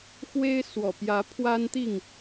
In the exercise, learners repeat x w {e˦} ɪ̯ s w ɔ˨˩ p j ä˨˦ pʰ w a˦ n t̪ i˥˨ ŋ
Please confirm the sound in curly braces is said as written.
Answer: yes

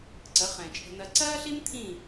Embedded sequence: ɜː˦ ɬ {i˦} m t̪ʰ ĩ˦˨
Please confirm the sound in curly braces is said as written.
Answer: yes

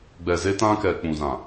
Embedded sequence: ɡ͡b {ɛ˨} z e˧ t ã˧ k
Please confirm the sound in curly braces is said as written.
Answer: yes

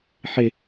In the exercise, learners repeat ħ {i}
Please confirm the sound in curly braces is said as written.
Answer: no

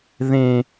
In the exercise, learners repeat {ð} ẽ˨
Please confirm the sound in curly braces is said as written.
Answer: yes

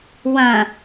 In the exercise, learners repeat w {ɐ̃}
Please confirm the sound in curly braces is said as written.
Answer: yes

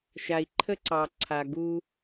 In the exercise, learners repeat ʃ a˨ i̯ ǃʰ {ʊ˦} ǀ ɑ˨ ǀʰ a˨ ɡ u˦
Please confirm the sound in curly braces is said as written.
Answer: no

